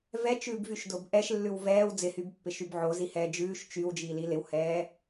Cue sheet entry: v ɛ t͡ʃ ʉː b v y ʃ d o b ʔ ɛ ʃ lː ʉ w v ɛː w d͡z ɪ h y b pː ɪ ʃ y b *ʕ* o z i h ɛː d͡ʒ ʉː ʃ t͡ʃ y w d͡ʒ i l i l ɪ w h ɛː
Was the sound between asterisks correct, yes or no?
yes